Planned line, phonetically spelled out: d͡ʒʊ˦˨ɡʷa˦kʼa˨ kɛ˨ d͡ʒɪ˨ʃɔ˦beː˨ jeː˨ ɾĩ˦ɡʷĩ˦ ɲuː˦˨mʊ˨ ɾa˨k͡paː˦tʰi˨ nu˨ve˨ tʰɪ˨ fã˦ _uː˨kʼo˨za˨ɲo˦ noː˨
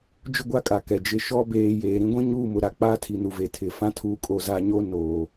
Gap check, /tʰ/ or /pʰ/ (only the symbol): tʰ